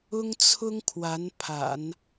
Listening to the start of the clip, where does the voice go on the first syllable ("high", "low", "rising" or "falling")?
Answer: high